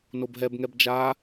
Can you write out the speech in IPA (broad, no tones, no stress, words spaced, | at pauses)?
nobɦɛbŋɛb d͡ʒa